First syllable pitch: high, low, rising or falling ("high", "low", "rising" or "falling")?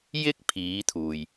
high